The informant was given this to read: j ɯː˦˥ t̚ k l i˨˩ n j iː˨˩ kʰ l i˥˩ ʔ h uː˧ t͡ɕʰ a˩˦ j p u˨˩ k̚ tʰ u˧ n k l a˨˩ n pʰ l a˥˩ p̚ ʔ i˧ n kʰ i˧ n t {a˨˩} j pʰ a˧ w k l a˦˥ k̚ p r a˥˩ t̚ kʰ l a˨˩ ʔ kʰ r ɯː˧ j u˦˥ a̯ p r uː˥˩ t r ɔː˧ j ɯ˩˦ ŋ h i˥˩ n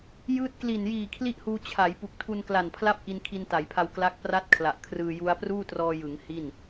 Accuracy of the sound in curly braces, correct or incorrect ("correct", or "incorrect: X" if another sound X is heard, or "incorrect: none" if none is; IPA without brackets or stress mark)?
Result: incorrect: a˩˦